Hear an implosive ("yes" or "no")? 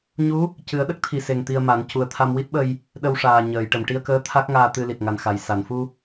yes